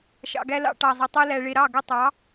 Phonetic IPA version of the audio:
ʃ ɑ̰˧ ɡ æ˦ l ɑ̰˦ ʈ ɑ˧ zˤ i˧ tˤ e˦ l æ˧ ɭ e˧ ɾ ɑ˦˨ ɡ ə˦˨ tˤ ɑ˨˦

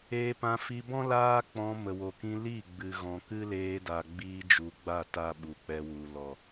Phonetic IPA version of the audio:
eː˧ p ã˧ f i˧ b ɔ̃˦ l aː˦ k͡p ɔ̃˧ m ə˨ w o˨ k ĩ˧ l i˦˨ ɡ͡b ɨ˨ ɣ ɔ̃˨ k ɨ˦ l eː˧ d a˨ ɡ͡b iː˧ d͡ʒ u˨ ɡ͡b a˦˨ t a˦ ɓ u˨ k͡p ɛ˧ w u˨ l ɔ˨

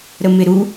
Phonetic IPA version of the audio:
ɾ ə m ɪ ɾ u

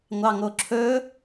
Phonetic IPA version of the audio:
ŋʷ ɑ ŋ o ǁʰ ɵ

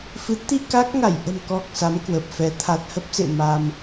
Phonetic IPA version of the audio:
f ɨ˨˦ t̪ i˧ k a˦˥ k̚ ŋ a˧˩ j ʔ ə̤˨˩ m k ɔ˨˩ k̚ s a˨˦ m k w ə˨˩ p̚ f ɛ˨˦ t̪ʰ a˨˩ t̚ h ə˦˥ p̚ s ḛ˧˨ m a˧ m

